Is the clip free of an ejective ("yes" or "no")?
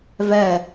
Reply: yes